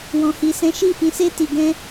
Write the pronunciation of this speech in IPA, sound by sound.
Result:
w ɔ̃˧ h i˧ s ɛ̃˦ ʃ i˦˨ f ĩ˧ s e˦ t i˧ ɡ ɛ̃˦

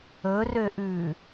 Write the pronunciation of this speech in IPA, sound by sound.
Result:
ɵ r ø ʔ ʉː

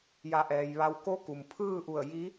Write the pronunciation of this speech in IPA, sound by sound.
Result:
j a˧˩ ʔ ɛː˩ j ʋ a˧ w k o˧˥ k u˩ m pʰ ɯː˥˨ ʔ u˧˩ ə̯ j i˧˥

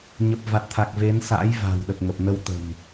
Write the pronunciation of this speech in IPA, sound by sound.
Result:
ɲ ə˨˩ p̚ v a˨˩ t̚ t̪ʰ a˨˩ k̚ v e˨˦ n s a̰ː˧˥ j v a̤˨˩ w ɗ ə˨˩ p̚ ŋ ə˨˩ p̚ n ə˧ w t̪ ə̤˨˩ m

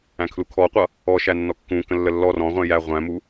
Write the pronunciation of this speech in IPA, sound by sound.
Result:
æ̃ kʰ l u kʰ ɔ qʷ ʌ | ɔ ʃ æ nː ɔ kː ũ k ə̃ lː ə lː ɔ r ɔ̃ ʁʷ æ̃ j æ ʁʷ æ̃ m u

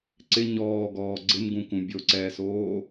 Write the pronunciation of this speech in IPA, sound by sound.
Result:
ǀ ɪ ɲ ɔː ɡ ɔː ɡ͡ǀ ɪ m ɡ ũ k ũ bʲ o ǀ ɛː s oː

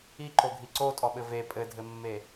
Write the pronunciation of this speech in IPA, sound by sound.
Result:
i ǃ o ɡʱ i ǀ o tʼ ɔ ɓ ɘ v e pʼ ɘ dʱ ɘ mː e

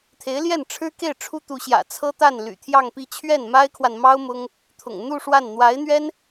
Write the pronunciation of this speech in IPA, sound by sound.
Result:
t̪ʰ e˧˥ ɪ̯ l j ɛ˥˩ n ʈ͡ʂʰ ɻ̩˥ k e˥˩ ɪ̯ ʈ͡ʂʰ u˥ t̪ u˧˥ ɕ j ä̰˨˩ t͡sʰ ɤ˥ t̪ a˥˩ n l y̰˨˩ t̪ʰ j ɑ˥˧ ŋ p i˥˧ t͡ɕʰ ɥ ɛ˥˩ n m a˥ ɪ̯ kʰ w a˨ n m ɑ˥ ʊ̯ m ʊ˥ ŋ | t̪ʰ ʊ̰˨˩ ŋ n̪ u˥˧ ʂ w a˥˩ n n̪ w a˧˥ ɪ̯ n̪ ɥ ɛ˥ n

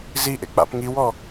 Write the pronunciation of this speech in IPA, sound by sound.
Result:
z i ʔ ḛ k͡p a̰ p ŋ i w ɔ

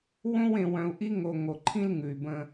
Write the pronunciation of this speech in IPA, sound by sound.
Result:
w õ˦ w ẽ˨ w œ̃˨ u̯ ʔ i˦ ŋ o˨ ŋ o˨ ǃʰ ĩ˦ l ŋ ʉ˨ y̯ b ə̃˦

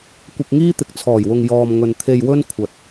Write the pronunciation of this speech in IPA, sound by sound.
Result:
kʷ ɪ˧ k̚ ŋ iː˥ t̪ ɪ˨ k̚ t͡sʰ ɔː˨˩ j w ʊ˨ ŋ j ɔː˨ m ŋ ɵ˨ n t̪ʰ e˧ j w ɵ˥ n kʷʰ ɐ˨ t̚

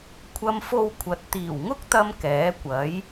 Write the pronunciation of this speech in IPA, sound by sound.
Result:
kʷʰ ɐ˧ m f o˧ w kʷʰ ɐ˨˥ t̚ t̪ iː˨˩ w ŋ ʊ˥ k̚ t̪ ɐ˧ m k ɛː˨˥ kʷ ɐ˨˥ j

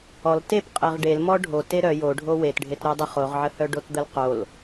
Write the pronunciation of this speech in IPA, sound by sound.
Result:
ɔ l t e p qʼ e ʁ ɖ e l m ɔ ɖʱ o t e ɾ œ j o ɖʱ o w e t ɖʱ e t ɾ o dˤ ə χ o ʁ ʕ ə h œ ɖ o t d̪ ə l q o l

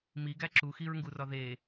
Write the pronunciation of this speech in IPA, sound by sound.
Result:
m i ɡ æ ǁ u x i ɹ ŋ ɡ u r ɒ ð e

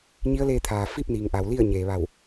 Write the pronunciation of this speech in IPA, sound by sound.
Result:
ɲ i˧˥ ə̯ l eː˧ t̪ʰ aː˩ f i˥˨ p̚ n iː˩ ŋ ʔ a˩ w l i˥˨ ə̯ ɲ eː˩ ʋ a˧˩ w

